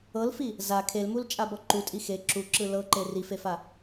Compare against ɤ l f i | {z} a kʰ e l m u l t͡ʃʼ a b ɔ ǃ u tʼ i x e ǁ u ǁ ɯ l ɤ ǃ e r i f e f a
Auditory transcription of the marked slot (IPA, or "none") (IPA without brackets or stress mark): z